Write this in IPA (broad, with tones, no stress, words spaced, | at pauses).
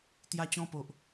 t̪ja˧t͡ɕɔ̃˧po˨ʔ